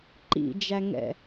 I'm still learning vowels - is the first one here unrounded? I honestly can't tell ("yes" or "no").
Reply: yes